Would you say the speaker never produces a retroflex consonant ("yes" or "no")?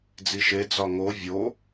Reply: yes